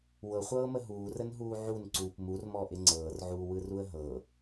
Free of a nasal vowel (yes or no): yes